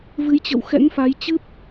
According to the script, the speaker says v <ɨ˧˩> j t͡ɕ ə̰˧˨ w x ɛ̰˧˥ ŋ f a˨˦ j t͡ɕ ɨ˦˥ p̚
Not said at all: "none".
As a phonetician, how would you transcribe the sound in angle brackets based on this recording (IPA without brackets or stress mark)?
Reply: ɨ˨˦